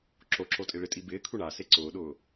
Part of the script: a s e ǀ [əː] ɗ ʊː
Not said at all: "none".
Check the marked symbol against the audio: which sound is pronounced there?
ʊː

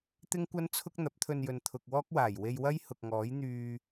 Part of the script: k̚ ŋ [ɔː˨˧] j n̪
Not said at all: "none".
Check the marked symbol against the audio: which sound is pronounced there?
ɔː˨˥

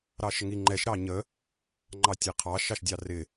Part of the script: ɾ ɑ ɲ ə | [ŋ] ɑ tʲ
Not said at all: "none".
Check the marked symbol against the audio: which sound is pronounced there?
ŋ͡ǃ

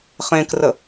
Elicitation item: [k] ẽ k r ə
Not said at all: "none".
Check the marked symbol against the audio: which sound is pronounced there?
χ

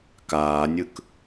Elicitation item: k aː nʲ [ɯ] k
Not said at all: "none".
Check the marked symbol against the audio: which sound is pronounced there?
ɯ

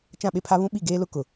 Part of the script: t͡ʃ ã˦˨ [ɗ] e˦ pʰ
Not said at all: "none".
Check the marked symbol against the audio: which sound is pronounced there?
ɓ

